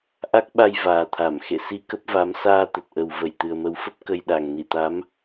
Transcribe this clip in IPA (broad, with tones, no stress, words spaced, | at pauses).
ʔa˦˥k̚ɓa˧j vaː˨˩t̪ʰa˧˩m xḛ˧˨si˧ kə˦˥p̚va˨˦m saː˧ t̪ə˨˩t̚ʔə˨˩w və˧˩jt̪ɨ˨˩ə̯mə˨˦wfə˦˥p̚ kə˧jɗa˨˩ŋ ni˧˩t̪a˨˦m